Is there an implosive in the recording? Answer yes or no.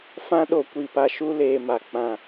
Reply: yes